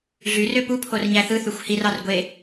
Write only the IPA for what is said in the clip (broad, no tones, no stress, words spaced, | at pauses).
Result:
ɮyrø pupʰor ɲæθɯθyxʷ hirɑr ɡʷe